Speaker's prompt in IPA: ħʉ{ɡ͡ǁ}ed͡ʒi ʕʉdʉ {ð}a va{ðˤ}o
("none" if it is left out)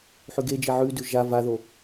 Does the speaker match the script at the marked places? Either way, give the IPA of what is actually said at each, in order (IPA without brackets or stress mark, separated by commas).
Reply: ɡ, ʒ, ð